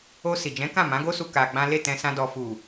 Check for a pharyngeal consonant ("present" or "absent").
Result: absent